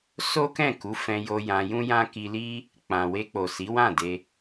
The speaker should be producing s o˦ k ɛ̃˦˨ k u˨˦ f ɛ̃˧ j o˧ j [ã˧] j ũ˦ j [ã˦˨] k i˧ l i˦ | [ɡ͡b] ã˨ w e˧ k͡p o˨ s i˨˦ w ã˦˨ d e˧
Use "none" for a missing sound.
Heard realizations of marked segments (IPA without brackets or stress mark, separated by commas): ã˧, ã˦, k͡p